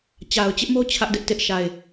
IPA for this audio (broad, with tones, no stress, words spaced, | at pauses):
t͡ɕa˨ʊ̯t͡ɕɪ˦ʔmo˦ t͡ɕʰä˦ʔdɪ˦ʔtɪ˦ʔ ʃa˨ɪ̯